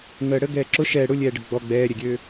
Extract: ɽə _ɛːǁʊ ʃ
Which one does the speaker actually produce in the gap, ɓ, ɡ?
ɡ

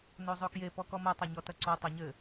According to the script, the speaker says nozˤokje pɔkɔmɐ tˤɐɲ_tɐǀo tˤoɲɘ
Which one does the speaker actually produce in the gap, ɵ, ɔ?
ɔ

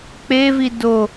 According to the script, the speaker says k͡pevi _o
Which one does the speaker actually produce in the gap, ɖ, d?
d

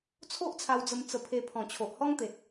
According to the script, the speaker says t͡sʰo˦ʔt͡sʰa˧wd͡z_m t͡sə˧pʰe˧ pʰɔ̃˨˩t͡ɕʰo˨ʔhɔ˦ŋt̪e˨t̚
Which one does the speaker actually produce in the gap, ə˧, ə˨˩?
ə˧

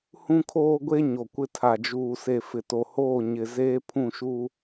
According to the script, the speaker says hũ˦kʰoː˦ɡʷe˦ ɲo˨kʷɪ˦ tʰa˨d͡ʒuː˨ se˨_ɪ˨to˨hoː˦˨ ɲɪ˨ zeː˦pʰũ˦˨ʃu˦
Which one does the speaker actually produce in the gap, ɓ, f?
f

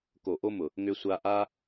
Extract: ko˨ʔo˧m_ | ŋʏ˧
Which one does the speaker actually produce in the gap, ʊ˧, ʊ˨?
ʊ˨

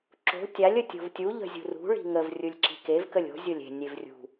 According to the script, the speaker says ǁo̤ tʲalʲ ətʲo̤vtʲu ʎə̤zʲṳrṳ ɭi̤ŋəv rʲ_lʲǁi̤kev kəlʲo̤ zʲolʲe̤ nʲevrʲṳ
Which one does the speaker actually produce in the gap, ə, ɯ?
ɯ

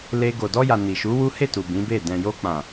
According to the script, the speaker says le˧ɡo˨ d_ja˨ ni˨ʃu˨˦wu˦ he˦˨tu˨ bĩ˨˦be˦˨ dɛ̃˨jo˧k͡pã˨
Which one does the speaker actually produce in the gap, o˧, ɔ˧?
ɔ˧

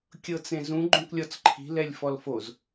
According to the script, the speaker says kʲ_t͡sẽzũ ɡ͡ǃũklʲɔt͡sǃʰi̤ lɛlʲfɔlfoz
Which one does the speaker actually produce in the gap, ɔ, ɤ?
ɤ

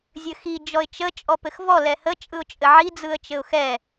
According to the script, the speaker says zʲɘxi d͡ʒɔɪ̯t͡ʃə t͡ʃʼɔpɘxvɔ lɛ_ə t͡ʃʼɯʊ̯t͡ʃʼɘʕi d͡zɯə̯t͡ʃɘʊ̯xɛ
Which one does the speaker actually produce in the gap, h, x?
h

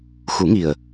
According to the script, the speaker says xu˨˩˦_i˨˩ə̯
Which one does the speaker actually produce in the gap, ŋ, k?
ŋ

